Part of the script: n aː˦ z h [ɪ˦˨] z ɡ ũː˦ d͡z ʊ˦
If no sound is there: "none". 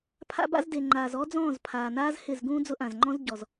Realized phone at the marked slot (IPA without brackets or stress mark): ɪ˦˨